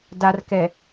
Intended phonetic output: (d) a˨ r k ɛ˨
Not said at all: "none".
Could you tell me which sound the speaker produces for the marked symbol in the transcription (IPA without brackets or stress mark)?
d